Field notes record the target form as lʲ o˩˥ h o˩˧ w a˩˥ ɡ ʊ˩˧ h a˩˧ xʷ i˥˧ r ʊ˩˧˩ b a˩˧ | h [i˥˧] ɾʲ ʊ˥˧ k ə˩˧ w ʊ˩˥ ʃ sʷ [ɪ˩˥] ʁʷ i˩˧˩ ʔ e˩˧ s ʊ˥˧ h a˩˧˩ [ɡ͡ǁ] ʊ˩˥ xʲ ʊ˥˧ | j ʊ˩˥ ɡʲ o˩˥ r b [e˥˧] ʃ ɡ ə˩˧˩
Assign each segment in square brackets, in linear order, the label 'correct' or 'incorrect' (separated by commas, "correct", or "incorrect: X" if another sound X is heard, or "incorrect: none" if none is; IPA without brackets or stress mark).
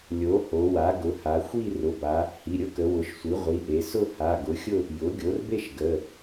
incorrect: i˩˧˩, incorrect: i˩˥, incorrect: ɡ, correct